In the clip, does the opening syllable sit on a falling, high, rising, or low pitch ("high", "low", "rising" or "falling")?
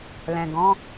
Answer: low